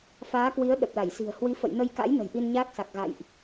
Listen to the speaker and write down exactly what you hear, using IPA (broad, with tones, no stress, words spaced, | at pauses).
faː˨˦kwi˨˦ə̯ ɗə˨˩p̚la˧˩jsi̤˨˩ə̯ hwi˨˦fə̰˧˨jnə˧jka̰˧˥j nə̤˨˩jʔi˧nɲaː˦˥k̚sa˨˩k̚ ɣa̰˧˨jʔ